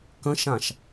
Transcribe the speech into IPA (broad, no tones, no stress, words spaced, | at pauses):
kə̃ʃãʃ